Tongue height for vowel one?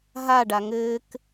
low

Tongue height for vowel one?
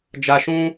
low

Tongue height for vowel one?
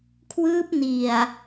high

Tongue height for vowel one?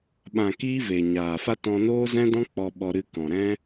low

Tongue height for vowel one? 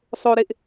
mid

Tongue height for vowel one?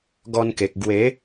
mid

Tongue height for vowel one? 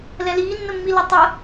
mid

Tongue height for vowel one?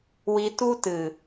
high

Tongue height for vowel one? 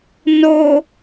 mid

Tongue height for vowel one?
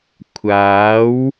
low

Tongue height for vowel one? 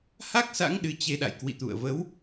low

